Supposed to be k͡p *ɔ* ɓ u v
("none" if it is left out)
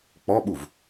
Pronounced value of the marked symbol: ɔ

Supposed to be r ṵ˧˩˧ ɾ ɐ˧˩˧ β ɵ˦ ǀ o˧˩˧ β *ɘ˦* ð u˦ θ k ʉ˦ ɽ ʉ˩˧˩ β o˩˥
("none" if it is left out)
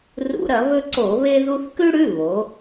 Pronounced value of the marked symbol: e˦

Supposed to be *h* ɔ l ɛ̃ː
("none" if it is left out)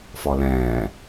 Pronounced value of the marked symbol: f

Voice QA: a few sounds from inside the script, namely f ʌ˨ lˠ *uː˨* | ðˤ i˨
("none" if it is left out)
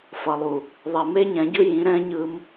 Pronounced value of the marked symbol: u˨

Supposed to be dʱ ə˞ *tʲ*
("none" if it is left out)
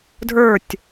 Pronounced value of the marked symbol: tʲ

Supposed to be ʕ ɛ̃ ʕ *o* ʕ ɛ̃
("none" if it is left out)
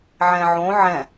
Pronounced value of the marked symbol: õ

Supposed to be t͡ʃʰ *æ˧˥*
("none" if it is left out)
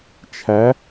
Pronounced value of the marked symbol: æ˧˥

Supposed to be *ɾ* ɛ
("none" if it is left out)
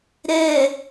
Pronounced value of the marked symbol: ɾ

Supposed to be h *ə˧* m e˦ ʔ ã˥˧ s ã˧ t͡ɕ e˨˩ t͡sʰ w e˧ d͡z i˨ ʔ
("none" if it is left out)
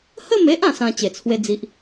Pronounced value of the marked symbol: ə˥˧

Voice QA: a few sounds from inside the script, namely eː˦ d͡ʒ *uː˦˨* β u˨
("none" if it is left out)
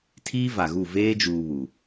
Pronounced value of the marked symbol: uː˨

